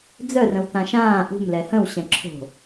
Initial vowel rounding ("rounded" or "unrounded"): rounded